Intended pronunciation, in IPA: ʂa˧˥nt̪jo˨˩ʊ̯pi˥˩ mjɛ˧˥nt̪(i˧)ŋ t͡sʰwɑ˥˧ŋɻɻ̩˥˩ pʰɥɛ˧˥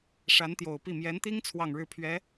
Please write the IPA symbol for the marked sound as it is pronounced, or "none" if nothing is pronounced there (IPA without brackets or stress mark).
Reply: i˥